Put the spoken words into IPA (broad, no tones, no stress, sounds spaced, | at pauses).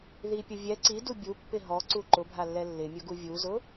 ð i pʲ ʊ vʲ ɛ ǀ i d u bʲ u pː ɪ ɦ ɔ ǀ u ǃ ʊ bʱ a lː ɛ lː ɪ mʲ ʊ ɡ u vʲ u z ʊ